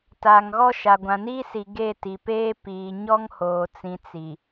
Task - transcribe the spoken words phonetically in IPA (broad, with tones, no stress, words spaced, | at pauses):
taː˨ŋɣɔ˦ʃa˨ ɡʷã˨niː˦si˨ ɡe˦˨ti˨peː˦ piː˨ ɲɔ˦ŋ hoː˨t͡sĩ˨ t͡si˨